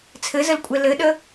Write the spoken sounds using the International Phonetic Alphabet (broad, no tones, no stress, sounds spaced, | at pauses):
t͡sʰ ɘ z ə l kʷʼ ɛ l ɘ ɗ ə